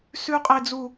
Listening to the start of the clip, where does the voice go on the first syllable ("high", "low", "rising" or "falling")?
high